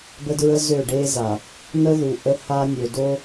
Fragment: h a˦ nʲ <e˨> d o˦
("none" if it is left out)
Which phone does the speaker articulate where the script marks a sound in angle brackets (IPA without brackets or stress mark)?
ø˨